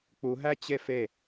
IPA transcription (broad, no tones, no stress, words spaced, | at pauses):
k͡puɦæ t͡ɕefe